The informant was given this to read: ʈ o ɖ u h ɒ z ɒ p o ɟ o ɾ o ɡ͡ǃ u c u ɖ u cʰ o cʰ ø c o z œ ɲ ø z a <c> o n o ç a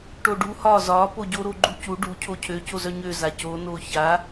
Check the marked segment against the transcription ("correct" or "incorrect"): correct